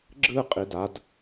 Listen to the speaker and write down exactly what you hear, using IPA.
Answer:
ɡ͡ǁ ɯ qʼ i d a d

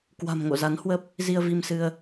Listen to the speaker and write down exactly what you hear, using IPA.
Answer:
k w a̤˨˩ m ŋ o̰˧˨ z a˨˦ n h w ə˦˥ p̚ | z i˧ ə̯ v i˧ m s ɨ˧ ə̯

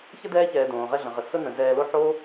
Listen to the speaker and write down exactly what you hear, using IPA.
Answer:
ç ə˥ d ɛː˥ ç ɛː˨ d õː˩ ʁ ɛ˦ ɮ ə̃˩ ʁ ə˩ s ʊ˦ n ə̃˩ z ɛː˨ l o˦ ħ o˥

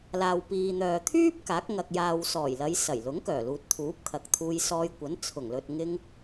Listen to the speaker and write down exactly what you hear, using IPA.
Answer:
l aː˨ w p iː˨ n̪ œː˨ t̪ʰ yː˥ p̚ k aː˨˥ k̚ ŋ ɐ˨ k̚ j aː˨ w s ɔː˨˩ j l ɐ˨˧ j s ɐ˨˩ j l ʊ˨˥ ŋ k œː˨˩ l uː˨ t̚ t̪ʰ uː˨˥ p̚ kʰ ɐ˨ k̚ t̪ʰ uː˧ j s ɔː˧ j kʷ ɐ˨˥ n t͡sʰ ʊ˨˩ ŋ l ɵ˨ t̚ ŋ ɪ˧ ŋ

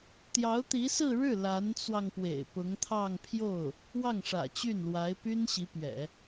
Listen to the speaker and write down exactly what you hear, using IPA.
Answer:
t̪ j ɑ˧˥ ʊ̯ t̪ i˧˥ s ɹ̩˥˧ ɻ ɻ̩˥˩ l a˧˥ n t͡s w ɑ˧ ŋ p w ḛ˨˩ ɪ̯ p ʊ˧˥ ŋ t̪ʰ ɑ˥˧ ŋ pʰ j o˥˩ ʊ̯ | w ɑ˥˩ ŋ ʂ ä̰˨˩ t͡ɕ y˥˩ n l w a˧˥ ɪ̯ p y˥ n ɕ i˧˥ p ɥ ɛ̰˨˩˦

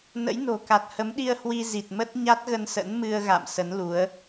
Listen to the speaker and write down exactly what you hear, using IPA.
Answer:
n ə̰˧˥ j n o̤˨˩ k a˨˩ t̚ h ə˨˦ m ɗ i˧ ə̯ h w i˧ z i˨˩ t̚ m ə˦˥ t̚ ɲ a˦˥ t̚ ɣ ə˧ n s ə̰˧˥ n m ɨ˧ ə̯ ɣ a̰˧˨ m s ə˨˦ n l u˨˦ ə̯

